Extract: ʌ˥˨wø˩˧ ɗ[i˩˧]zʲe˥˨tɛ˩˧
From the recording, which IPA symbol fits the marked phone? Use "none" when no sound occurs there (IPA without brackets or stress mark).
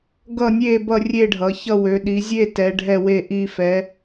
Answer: i˩˧